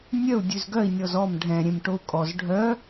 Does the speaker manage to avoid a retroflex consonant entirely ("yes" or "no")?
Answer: no